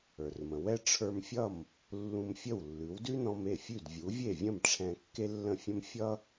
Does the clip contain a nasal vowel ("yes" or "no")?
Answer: yes